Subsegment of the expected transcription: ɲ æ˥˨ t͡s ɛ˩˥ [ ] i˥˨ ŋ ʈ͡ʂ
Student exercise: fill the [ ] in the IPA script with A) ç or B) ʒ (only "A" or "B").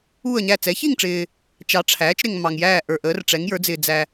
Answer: A